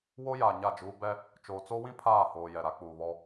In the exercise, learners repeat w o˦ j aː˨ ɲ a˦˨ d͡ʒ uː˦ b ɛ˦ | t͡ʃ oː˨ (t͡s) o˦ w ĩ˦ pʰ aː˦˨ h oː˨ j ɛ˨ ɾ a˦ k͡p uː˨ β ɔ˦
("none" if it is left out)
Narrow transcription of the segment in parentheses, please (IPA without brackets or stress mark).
t͡s